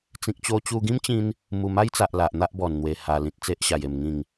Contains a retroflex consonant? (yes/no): no